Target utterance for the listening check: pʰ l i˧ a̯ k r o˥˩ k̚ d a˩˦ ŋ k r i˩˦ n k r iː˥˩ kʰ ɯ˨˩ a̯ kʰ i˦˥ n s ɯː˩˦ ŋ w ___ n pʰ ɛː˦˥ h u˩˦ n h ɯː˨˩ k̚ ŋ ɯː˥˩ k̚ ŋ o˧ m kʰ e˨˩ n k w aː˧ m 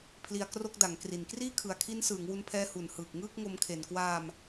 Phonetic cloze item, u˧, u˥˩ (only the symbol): u˧